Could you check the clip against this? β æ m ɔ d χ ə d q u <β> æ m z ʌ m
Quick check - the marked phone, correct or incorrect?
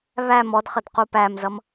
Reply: incorrect: p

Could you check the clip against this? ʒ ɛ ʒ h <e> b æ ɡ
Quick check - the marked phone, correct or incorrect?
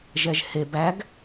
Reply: correct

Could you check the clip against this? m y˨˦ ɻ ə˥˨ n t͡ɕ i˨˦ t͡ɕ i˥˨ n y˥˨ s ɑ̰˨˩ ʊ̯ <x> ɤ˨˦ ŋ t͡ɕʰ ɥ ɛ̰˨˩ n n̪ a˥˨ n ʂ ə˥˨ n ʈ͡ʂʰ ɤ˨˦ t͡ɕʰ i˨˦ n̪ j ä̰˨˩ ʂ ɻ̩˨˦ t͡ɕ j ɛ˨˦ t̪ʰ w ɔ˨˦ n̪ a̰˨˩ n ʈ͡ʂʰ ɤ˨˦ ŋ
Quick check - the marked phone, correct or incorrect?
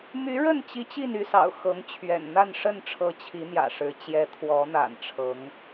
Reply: correct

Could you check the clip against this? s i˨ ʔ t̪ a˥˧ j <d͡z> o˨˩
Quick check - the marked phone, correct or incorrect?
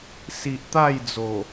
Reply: correct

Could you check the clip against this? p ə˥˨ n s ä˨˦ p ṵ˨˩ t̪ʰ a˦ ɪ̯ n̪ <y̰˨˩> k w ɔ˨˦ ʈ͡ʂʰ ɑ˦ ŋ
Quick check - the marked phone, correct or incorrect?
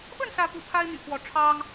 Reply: correct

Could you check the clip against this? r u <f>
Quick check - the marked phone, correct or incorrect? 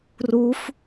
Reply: correct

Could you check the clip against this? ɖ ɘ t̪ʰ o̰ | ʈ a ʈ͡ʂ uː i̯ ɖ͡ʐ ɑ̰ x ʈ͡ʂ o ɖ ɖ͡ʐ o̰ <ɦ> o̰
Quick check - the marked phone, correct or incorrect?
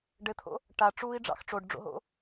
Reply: correct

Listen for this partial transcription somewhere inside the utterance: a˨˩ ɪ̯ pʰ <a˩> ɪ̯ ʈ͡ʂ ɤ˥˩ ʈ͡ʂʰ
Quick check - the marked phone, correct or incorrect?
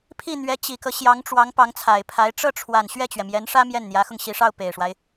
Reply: incorrect: a˧˥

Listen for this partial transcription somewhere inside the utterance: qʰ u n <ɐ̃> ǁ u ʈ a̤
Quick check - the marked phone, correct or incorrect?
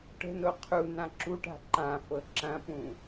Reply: incorrect: ã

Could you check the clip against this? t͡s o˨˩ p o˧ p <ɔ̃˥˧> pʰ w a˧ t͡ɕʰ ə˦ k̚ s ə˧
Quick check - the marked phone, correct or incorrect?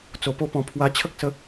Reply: incorrect: ɔ̃˨˩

